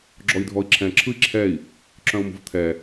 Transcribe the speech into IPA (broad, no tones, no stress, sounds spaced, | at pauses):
ɡ͡ǁ ɔ i̯ dʱ ɔ i̯ ǁʰ ɛ̃ ǁʰ ɯ i̯ ǁʰ ɛ i̯ | ǁ œ̃ u̯ m ṳ v t̪ʰ ɛ